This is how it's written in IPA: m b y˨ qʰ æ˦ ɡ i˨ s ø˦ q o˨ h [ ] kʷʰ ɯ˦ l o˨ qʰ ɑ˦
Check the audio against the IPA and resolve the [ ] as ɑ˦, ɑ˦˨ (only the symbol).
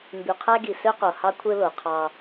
ɑ˦